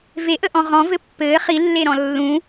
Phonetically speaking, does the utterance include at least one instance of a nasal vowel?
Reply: yes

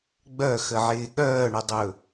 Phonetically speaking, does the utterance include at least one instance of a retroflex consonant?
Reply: yes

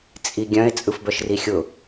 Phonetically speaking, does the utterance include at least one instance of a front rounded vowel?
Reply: yes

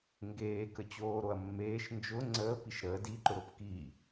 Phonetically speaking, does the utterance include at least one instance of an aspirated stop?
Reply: no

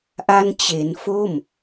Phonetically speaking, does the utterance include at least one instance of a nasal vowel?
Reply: no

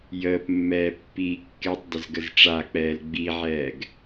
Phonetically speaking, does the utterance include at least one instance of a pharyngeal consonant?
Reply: yes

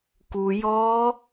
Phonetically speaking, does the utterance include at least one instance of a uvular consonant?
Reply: no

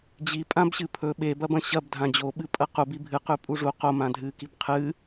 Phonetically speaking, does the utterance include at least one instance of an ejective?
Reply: yes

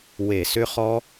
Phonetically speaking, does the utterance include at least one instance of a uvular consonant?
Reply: yes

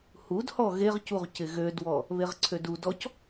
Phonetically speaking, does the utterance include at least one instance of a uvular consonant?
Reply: yes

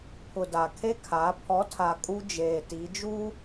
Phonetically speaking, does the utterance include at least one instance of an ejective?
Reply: yes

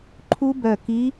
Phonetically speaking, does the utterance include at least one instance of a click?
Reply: yes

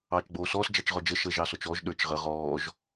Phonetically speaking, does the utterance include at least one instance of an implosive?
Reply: yes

